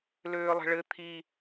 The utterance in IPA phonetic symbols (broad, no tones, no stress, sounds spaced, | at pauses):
l øː lˠ ə̤ ɭ ɘ t̪ʰ i